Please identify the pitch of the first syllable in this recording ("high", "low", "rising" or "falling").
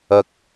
low